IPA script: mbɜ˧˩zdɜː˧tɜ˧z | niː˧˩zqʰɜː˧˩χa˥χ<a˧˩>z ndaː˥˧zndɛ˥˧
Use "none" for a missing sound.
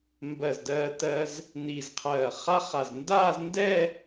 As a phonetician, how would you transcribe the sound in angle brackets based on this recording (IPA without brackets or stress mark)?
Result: a˧˩